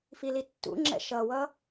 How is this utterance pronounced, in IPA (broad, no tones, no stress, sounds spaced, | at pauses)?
f i l i tː ṵ ŋ͡ǁ ɛ̰ ʃ ʌ w ʌ